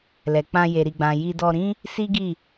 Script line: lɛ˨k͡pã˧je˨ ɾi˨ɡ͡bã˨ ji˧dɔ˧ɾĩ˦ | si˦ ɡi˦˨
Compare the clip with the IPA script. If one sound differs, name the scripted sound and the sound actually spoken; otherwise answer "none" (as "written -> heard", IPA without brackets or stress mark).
none